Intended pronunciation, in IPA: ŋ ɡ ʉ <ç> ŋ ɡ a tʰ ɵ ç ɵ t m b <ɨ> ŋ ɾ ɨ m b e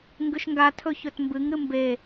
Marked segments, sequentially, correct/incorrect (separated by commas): incorrect, correct